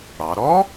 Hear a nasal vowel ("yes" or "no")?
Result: no